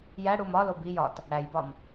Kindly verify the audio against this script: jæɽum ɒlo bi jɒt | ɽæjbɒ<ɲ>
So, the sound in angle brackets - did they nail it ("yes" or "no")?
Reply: no